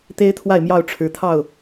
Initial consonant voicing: voiceless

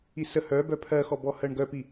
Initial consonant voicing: voiceless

